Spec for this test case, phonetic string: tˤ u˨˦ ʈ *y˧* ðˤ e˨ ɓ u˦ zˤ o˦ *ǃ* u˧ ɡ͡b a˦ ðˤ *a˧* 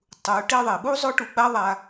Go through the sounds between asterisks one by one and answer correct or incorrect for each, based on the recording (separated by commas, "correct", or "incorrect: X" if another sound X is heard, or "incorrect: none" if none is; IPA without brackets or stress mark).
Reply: incorrect: e˧, incorrect: ʈ, correct